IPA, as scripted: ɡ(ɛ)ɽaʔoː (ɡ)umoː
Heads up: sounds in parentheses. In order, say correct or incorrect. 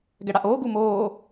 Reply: correct, correct

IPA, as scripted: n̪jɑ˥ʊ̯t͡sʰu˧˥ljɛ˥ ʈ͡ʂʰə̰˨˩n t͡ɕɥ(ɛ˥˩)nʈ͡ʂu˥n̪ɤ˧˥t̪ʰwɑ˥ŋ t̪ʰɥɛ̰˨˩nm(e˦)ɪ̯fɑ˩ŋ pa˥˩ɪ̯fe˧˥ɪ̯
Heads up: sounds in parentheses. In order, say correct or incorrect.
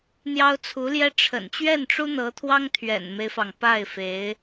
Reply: correct, correct

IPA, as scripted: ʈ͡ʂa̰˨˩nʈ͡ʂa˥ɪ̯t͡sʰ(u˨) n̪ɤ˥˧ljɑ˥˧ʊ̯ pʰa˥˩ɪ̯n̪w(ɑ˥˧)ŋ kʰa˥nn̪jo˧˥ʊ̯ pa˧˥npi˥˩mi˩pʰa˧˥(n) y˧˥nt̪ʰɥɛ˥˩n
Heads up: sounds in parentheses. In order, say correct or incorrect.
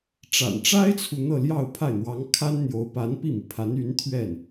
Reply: correct, incorrect: ɑ˧˥, correct

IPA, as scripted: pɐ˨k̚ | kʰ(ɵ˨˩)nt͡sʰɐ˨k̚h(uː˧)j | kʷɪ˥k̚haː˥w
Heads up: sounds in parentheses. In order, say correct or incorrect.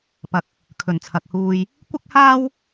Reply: correct, correct

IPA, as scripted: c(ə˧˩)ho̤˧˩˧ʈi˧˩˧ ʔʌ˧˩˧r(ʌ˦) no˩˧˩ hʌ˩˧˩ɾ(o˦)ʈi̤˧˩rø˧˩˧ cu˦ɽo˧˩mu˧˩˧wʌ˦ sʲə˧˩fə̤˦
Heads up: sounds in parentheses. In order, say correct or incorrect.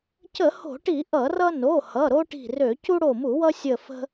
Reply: incorrect: ə˧˩˧, correct, correct

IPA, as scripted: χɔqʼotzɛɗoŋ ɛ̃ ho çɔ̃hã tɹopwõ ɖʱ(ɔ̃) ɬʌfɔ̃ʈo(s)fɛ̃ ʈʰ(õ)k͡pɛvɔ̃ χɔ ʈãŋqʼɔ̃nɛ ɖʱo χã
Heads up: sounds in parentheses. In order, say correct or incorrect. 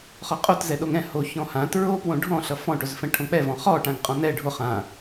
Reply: correct, incorrect: z, correct

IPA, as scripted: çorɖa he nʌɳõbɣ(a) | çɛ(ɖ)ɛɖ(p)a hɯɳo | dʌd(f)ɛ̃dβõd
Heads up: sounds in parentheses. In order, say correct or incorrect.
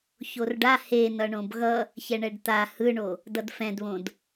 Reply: incorrect: ʌ, incorrect: ɳ, incorrect: t̪, correct

